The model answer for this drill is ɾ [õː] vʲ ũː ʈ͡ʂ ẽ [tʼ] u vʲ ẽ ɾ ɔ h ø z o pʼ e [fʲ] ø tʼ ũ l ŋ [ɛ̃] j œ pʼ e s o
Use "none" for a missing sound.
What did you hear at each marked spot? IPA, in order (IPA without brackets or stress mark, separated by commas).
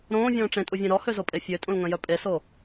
õː, tʼ, fʲ, œ̃